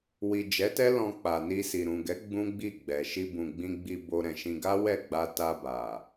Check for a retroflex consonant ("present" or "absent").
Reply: absent